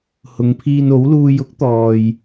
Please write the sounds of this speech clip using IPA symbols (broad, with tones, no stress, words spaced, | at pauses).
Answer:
hʊ˨˧ŋpʰiː˧n o˨˥wluː˧j ʊ˥k̚t̪ɔː˨j